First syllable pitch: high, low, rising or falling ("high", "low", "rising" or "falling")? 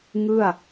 falling